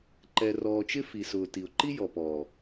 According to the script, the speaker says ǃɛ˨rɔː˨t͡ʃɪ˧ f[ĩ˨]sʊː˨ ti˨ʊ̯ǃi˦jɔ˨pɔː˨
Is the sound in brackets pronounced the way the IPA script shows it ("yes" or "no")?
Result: no